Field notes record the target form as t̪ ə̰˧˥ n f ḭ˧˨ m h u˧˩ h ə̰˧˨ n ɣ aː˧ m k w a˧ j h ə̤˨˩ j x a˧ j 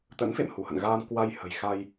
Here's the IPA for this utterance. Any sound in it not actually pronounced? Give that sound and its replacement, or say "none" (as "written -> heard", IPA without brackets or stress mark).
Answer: ḭ˧˨ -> ḛ˧˨